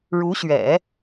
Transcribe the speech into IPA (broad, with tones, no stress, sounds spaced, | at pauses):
ɻ u˧˥ ɕ ɥ ɛ̰˨˩˦